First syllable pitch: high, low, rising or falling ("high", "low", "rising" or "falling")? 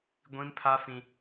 high